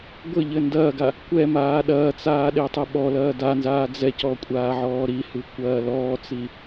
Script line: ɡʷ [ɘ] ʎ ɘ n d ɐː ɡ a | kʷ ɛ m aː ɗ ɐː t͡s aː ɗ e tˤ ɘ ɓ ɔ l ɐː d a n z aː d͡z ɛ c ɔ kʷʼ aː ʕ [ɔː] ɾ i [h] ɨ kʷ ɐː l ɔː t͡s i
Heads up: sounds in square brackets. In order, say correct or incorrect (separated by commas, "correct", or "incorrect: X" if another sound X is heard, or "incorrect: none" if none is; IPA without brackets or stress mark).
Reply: correct, correct, correct